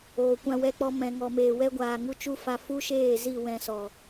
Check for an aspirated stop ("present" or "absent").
absent